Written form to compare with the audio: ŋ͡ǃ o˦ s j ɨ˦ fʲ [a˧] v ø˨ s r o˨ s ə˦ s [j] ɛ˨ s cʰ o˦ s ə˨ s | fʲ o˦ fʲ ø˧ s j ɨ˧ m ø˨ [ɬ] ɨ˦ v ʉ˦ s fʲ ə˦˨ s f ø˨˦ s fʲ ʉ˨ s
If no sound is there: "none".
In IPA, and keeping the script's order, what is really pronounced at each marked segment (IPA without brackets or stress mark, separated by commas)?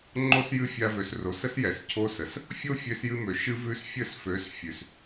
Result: a˧, j, ʃ